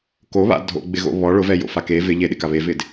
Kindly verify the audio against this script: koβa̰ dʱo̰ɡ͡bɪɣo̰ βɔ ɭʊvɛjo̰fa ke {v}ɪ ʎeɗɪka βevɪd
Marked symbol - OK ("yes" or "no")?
yes